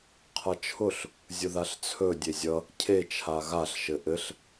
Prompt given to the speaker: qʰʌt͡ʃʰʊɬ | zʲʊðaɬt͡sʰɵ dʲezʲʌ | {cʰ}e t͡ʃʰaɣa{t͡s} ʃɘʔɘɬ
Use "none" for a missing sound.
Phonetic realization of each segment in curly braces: cʰ, ɬ

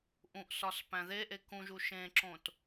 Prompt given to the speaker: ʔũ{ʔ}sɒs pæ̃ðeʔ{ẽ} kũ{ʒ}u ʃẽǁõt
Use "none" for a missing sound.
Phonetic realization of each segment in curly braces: ʔ, e, ʒ

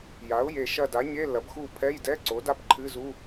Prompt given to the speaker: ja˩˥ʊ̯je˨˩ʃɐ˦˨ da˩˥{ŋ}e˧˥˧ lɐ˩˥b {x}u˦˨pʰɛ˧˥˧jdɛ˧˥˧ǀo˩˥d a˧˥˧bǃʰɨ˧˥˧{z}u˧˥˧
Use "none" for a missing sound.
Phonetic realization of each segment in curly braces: ɲ, x, z

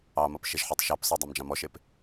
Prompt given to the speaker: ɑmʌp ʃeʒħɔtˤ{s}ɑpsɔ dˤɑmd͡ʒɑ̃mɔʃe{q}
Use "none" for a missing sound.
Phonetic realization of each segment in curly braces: ʃ, p

